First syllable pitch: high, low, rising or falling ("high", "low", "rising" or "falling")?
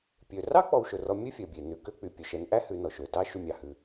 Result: low